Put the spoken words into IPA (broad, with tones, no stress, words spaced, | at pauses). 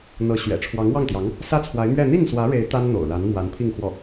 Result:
n̪ɤ˧˥ɕɥɛ̰˨˩ ʈ͡ʂʰwɑ˧˥ŋwɑ˥˩ŋt̪jɑ˧˥ŋ | sä˥t͡sʰwa˧˥ɪ̯mɥɛ˥˧ n̪i˥˩nswä˧˥ɻe˧˥ɪ̯ t̪a˥n n̪o̰˨˩ʊ̯la˧˥n mwa˧˥npʰi˥˧ŋxwɔ˥˩